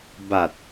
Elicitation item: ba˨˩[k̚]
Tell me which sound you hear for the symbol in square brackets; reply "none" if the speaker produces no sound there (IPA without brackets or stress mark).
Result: t̚